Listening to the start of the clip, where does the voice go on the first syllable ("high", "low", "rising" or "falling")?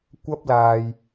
high